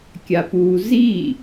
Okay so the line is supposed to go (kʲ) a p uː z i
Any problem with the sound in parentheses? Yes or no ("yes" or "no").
no